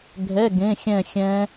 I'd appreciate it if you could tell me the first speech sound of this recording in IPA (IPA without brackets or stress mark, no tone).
ɡʱ